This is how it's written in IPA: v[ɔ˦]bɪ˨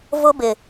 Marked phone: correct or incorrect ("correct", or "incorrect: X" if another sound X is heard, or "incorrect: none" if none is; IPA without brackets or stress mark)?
incorrect: ʊ˦